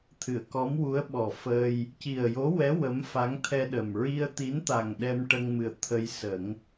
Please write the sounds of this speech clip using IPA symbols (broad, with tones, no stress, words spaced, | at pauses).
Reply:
t̪ʰɨ˨˩˨ə̯kɔ˧˥mwu˧˥ə̯ ɓɔ˨˩fəː˧j | ci˨˩ə̯jo˧˥wɛ˧˥ wə˧˥mfa˧˥ŋt̪ʰɛ˧ ɗə˨˩m ɹi˧ə̯t̪i˧˥nt̪a˨˩ŋ ɗɛ˧mʈə˧ŋmɨ˨˩ə̯ t̪ʰə˧jsə˨˩˦ŋ